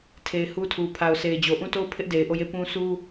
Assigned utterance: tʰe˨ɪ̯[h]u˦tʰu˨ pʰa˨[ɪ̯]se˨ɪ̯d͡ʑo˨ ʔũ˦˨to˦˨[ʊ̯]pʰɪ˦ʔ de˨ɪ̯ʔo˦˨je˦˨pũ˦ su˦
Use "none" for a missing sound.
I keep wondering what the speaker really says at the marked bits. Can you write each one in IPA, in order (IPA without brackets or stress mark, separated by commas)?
h, ʊ̯, ʊ̯